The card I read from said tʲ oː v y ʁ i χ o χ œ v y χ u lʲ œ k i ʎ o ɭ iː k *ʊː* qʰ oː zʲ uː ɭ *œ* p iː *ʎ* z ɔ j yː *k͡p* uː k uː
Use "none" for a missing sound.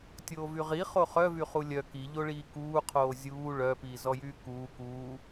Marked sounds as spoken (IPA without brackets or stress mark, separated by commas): uː, œ, none, k